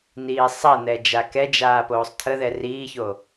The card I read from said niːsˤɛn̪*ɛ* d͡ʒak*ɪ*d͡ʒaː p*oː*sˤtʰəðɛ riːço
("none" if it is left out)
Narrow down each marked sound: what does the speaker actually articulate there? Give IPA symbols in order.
ɛ, ɛ, oː

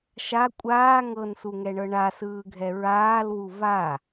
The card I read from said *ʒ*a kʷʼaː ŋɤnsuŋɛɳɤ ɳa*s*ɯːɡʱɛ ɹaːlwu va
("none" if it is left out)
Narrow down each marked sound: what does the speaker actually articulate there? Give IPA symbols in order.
ʃ, s

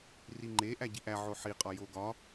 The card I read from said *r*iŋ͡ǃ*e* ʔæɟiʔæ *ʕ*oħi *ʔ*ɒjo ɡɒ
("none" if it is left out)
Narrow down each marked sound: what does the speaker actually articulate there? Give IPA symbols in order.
r, e, ʕ, qʼ

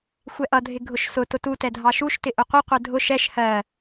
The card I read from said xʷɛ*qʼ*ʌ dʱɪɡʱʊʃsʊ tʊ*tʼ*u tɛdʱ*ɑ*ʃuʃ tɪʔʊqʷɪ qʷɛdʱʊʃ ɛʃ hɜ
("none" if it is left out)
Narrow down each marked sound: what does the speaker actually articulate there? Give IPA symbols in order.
ʔ, t, ɑ

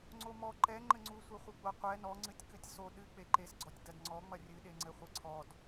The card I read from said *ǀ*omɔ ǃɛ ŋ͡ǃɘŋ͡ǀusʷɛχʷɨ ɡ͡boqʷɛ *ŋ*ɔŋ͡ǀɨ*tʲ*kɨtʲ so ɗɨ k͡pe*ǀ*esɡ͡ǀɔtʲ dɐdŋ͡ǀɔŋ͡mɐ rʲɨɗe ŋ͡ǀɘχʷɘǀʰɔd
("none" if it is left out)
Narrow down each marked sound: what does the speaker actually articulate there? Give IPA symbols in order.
ŋ͡ǀ, n, tʲ, ǃ

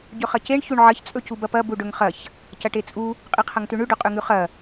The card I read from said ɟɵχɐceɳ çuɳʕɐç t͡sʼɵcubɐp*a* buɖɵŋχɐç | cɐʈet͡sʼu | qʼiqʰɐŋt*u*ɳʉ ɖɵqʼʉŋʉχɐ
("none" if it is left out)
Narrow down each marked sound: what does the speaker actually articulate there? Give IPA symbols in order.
ɐ, ʉ

